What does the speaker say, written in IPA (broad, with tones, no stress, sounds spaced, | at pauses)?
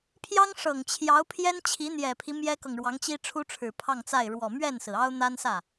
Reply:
pʰ j ɑ˥ ŋ ʂ ɤ˨˩ ŋ t͡ɕʰ j ɑ˧˥ ʊ̯ pʰ j ɛ˥ n t͡ɕʰ i˧˥ n̪ j ɛ˨˩ pʰ i˦ m j ɛ˥ k ɤ˨ ŋ ɻ w ɑ˧˥ ŋ t͡ɕ i˥ ʈ͡ʂʰ u˥ ʈ͡ʂʰ ɻ̩˨˩ pʰ ɑ˥˧ ŋ t͡s a˥˩ ɪ̯ ɻ w ɔ˨˩ m ɥ ɛ˥˩ n s ɹ̩˩ ɑ˥ ʊ̯ n̪ a˥ n s ä˥˩